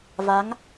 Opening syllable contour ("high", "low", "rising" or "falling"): rising